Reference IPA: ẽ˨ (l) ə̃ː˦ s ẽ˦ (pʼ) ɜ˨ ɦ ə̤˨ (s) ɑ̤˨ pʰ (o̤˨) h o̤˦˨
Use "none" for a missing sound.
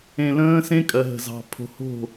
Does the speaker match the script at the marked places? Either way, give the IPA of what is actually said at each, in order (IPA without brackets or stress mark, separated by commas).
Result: l, kʼ, z, o̤˨